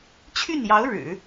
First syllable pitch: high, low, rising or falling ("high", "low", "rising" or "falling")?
falling